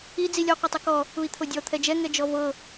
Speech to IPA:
i d͡z i lʲ ɔ qʷ ɤ tˤ u k ɔ | u i̯ t̪ʰ o dʲ ɔ t̪ʰ ɛ d͡ʒ ɛ ŋ ɛ d͡ʒ ɔ v ɤ

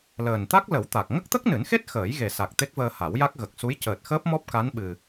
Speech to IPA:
l əː˨˩ n t̪ a˦˥ k̚ l ə˨˩˦ w t̪ a˨˩ k̚ ŋ ə˦˥ k̚ t̪ ə˦˥ k̚ n ɨ˨˩˦ n x e˦˥ t̚ x əː˨˩˦ j ɣ e˨˩ s a˨˩ k̚ t̪ e˦˥ k̚ v əː˧ h a˨˩˦ w j a˦˥ k̚ ɣ ə˨˩ k̚ s u˧˥ j c əː˨˩ t̚ x əː˦˥ p̚ m ɔ˦˥ p̚ k a˧˥ n ɓ ɨ˧

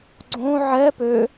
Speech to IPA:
ɡ͡ǀ õ ʕ ɛ p ø

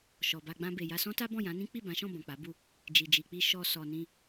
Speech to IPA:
ʃ ɔ˨ b a˧ ɡ͡b ã˧ b e˨ j a˧ s ɔ̃˦ t a˦ b ɔ̃˦˨ j ã˨˦ n ĩ˦ k͡p i˦˨ b ã˨˦ ʃ ɔ̃˦˨ b ɔ̃˨ k͡p a˨˦ b u˦˨ | d͡ʒ i˨ d͡ʒ i˨ k͡p i˧ ʃ ɔ˧ s ɔ˨ n ĩ˧

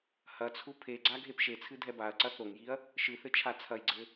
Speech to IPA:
h ɐ t͡sʰ u pʰ e ɡ͡ǀ a ɡʱ e p ʃ e t͡sʰ ɨ dʱ ɛ b a ɐ̯ ǀ ɐ θ o ŋ j i ɐ̯ | ʃ ɨ θ ɘ t͡ʃʰ a t͡sʰ ɐ j ɡ͡ǀ ɘ

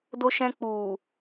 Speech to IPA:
d o˧ ʃ ɛ̃˧ k͡p u˨

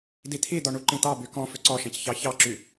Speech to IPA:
d i t̪ʰ i d̪ ɔ ɳ u ǃ ĩ t̪ ɑ b y k ɔ̃ f ʏ ǀ ɔ ʃ ɛ̃ c ç ɑ ç ɑ ǁ y

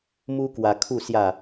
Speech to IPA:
m u˦ k w a˧ kʰ u˥˧ s j a˥˧

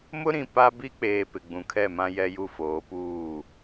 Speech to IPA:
m ʊ˦ ɾ ĩ˨ p a˦ b i˦ k͡p eː˨ p ɪ˨ ɡ͡b ũ˨ kʰ ɛ˦˨ m ã˦ j ɛ˦ j u˦˨ f oː˨˦ p uː˦˨

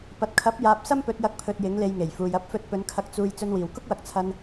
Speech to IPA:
p ɐ˨ t̚ kʰ ɐ˨˥ p̚ j aː˨ p̚ s ɐ˥ m p ɵ˨˥ t̚ j ɐ˧ k̚ pʰ ɵ˧ t̚ j ɪ˨˥ ŋ l e˧ j ŋ e˨˩ j f uː˨ j ɐ˧ p̚ f ɵ˧ t̚ p ɵ˨˧ n kʰ ɐ˧ k̚ t͡s uː˧ j t͡s ɵ˧ n w iː˨˩ w k ʊ˥ k̚ w ɐ˨ k̚ t͡sʰ ɐ˨ n

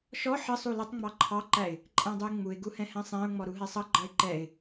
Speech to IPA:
ʃ ɔ ħ ə sˤ u l ʌ tˤ ŋ͡m ɑ ǃʰ ɑ ǃ æ ɪ̯ | ǃʼ æ̃ dˤ u ɪ̯ ŋ͡m u ɪ̯ ɡ u h ɛ̃ h ɛ̃ sˤ ɛ̃ ʊ̯ ŋ͡m ɔ ɾ u ɦ ɛ sˤ ʌ ɡ͡ǃ ɑ ɪ̯ ǃ ɛ ɪ̯

